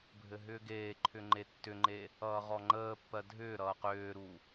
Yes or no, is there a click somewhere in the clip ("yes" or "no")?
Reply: yes